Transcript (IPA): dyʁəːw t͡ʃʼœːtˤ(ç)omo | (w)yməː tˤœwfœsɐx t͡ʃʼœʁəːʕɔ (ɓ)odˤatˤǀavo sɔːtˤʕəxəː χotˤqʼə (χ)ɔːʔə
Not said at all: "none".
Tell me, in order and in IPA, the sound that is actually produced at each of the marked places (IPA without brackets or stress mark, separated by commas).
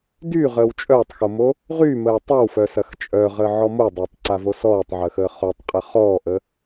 x, ʁ, m, χ